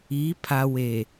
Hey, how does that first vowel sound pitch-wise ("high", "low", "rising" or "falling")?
rising